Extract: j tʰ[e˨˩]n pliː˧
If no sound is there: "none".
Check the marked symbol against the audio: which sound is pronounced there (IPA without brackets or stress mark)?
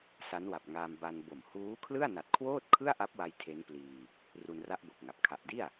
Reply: e˦˥